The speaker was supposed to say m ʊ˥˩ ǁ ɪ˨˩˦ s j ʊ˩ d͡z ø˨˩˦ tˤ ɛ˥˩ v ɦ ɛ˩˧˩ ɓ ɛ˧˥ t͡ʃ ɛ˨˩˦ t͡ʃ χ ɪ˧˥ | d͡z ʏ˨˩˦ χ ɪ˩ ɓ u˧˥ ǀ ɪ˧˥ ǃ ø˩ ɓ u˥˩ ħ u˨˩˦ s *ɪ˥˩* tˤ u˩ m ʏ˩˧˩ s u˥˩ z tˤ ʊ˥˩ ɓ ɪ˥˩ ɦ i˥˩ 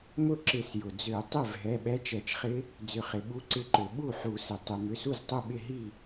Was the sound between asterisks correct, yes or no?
no